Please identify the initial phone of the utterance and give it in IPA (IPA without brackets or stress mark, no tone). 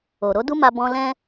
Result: o